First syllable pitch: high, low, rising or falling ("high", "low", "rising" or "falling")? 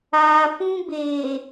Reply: low